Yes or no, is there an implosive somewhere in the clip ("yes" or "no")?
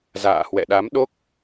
yes